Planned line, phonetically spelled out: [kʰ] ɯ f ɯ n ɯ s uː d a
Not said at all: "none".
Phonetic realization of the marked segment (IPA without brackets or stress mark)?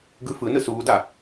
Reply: ɡ